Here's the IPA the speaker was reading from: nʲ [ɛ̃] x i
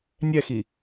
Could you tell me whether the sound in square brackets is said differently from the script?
yes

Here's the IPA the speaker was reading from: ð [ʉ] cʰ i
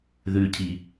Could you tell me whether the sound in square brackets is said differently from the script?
no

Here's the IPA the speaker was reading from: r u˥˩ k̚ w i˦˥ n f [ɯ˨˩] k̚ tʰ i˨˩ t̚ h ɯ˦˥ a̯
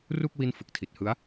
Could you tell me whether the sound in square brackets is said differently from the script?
no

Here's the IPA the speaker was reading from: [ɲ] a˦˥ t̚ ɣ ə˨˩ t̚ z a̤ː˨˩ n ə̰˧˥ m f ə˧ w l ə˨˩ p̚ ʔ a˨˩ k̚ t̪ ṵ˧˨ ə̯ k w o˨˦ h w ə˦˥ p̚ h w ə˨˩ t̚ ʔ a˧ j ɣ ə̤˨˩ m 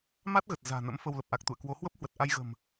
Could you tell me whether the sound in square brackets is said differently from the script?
yes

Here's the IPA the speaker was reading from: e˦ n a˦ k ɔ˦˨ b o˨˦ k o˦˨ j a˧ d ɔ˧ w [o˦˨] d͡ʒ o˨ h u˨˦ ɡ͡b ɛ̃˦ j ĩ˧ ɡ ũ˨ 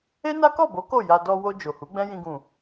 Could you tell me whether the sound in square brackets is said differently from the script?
yes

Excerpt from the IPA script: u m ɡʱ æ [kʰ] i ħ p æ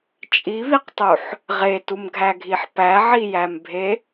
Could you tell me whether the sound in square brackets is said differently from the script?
yes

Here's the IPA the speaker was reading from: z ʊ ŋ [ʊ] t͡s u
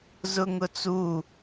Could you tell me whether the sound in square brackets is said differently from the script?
no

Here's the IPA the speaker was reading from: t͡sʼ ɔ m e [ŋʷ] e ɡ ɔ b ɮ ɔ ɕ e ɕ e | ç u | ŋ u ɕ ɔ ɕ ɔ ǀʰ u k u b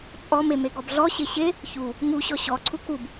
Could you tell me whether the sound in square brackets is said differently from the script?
yes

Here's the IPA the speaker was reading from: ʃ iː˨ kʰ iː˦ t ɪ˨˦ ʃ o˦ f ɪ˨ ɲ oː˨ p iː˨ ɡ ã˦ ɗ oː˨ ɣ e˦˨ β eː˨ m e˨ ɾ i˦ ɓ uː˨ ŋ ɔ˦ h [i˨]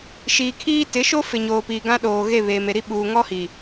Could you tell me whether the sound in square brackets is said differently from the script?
no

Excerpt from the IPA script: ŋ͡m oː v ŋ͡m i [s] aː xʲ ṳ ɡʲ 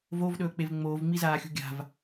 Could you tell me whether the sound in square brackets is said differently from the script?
yes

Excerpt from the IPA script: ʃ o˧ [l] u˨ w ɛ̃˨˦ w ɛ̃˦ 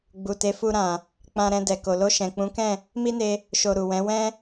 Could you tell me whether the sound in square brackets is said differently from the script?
yes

